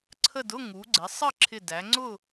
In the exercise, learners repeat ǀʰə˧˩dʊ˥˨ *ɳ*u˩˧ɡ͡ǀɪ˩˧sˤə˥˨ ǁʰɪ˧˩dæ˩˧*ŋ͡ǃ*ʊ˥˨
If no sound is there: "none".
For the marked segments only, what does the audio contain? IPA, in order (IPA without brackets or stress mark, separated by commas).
ŋ, ŋ͡ǀ